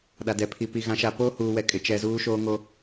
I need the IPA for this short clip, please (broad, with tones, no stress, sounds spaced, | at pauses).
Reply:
ɗ a˨ d ɛ˨ pʰ i˨ p i˨ ɣ ã˨ ʃ a˨ p oː˦ h uː˨ w ɛ˨ kʼ ɪ˨ t͡ʃ ɛ˨ z uː˦ ʃ oː˦ ŋ o˦